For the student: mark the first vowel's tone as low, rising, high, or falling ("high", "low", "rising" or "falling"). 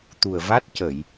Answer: low